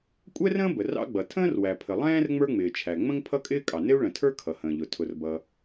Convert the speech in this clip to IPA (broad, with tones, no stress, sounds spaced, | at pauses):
kʷʼ ɛ˥ r ə̃ː˥ b ə˩ r ɑ̰˥ ɡ͡b ʌ˩ tʰ ə̃ː˥ r w æ˩ pʰ ə˩ lˠ ɛ̃ː˥ r ŋ͡m ə˞˥ ŋ͡m ɪː˩ t͡ʃʰ æ˩ ŋ͡m ə̃˥ ŋ pʰ ʌ˥ kʼ ɪː˥ kʼ ɑ˩ n ɪ˥ u̯ ɭ ə̃˩ tʰ ə˞˥ kʰ ʌ˩ h ə̃ː˩ ʎ ʊ˩ tʰ ʊ˩ r b ʌ˩